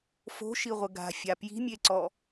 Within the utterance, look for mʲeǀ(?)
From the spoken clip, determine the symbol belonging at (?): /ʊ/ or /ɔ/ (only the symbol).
ɔ